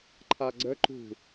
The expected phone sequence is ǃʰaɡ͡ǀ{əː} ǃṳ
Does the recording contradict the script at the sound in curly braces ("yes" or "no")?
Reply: yes